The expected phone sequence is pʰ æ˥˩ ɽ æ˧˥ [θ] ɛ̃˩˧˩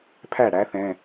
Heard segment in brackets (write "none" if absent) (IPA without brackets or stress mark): θ